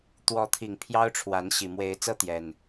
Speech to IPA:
t̪wɔ˨˦t̪ʰi˨˩ŋ pʰjɑ˦ʊ̯ʈ͡ʂʰwa˨˦n ɕi˨˩ mwe˨˦ɪ̯t͡sɤ˦t̪jɛ˨˩n

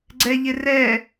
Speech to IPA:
ɡ͡ǀɛʎɪ rɛ

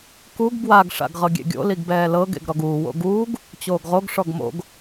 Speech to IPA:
kuɡ bwaɡ ʂa̰ɡʁɤɡʲḛɡʲo̰ liɡbɛːlɤ ɡḛɡɾɔɡuː wo̰ɡuːɡ | t͡ɕoːɡʁoɡ ʂɔɡmo̰ɡ

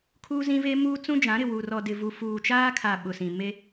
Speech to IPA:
kʰuː˦zĩ˦ve˦ muː˦t͡sũ˦d͡ʒã˨˦ɾɪ˨ wu˨rɔ˨ dɪ˨vu˨ fuː˨t͡ʃaː˦kʰa˨ ɓʊ˨sĩ˨ me˦

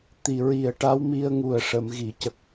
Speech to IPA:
t̪i˨˩ɹi˨˩ə̯ʈa˧˥w mi˧ə̯ŋu˨˩ə̯ʂə˨˩˨m ɣi˨˩˨cə˨˩k̚

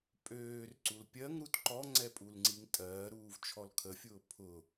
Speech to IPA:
pʼøːrǀul pʲɜŋɾut ǃɔŋ͡ǀɛpʼulŋ͡ǀiŋ tʼɜːɾuːvt͡ʃʰɔl kʰəfʲʊː pʰʊ

